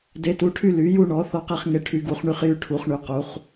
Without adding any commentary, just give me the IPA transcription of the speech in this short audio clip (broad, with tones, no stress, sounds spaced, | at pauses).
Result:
d e˨˦ t u˨˦ ʈʰ y˦ l y˨˦ j u˦ ɳ ɔ˨˦ θ ɔ˦ q e˦ χ ŋ e˦ ʈʰ y˨˦ ɡ u˨˦ χ ɳ y˦ χ j y˦ ʈʰ u˨˦ χ ɳ y˨˦ q u˨˦ χ